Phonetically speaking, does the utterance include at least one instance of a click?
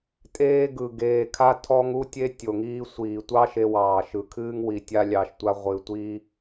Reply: no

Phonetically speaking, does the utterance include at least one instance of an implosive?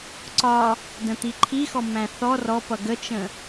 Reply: no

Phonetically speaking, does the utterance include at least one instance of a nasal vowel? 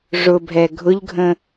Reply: yes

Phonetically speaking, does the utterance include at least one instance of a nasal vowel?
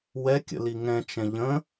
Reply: yes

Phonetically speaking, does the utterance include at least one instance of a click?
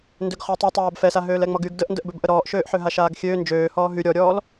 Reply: no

